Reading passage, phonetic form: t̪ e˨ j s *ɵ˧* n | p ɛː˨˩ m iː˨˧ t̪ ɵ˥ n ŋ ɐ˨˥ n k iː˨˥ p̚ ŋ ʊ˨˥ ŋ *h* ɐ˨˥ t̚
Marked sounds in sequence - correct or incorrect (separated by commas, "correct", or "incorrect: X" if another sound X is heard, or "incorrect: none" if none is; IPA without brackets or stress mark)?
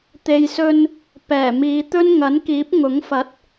correct, incorrect: f